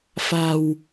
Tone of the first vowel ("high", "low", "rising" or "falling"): low